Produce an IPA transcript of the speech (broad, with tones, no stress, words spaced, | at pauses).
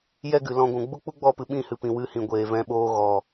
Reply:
jɛ˦ɡɨ˨lɔ̃˧ɡʷũ˨ ɡ͡bu˦ k͡pu˦ɡ͡bɔ˦˨pɨ˨ ɓĩ˦˨hɨ˨pĩ˨ wɨ˧hĩ˨ɡʷeː˨ vɛ̃˧ɓoː˧ ɣɔ˨